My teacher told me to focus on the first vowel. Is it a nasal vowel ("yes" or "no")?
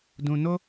yes